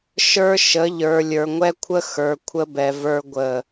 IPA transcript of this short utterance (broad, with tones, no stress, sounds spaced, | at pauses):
ʃ ə˞˦ ʃ ə˨˦ ʎ ə˞˨ lʲ ə˞˨ ŋʷ ɛ˦ kʷʰ ə˦ x ə˞˨ kʷʰ ə˦ b ɛ˨ v ə˞˦ ɡʷ ə˦˨